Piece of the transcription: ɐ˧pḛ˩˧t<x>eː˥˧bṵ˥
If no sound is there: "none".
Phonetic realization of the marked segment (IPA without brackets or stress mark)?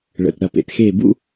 x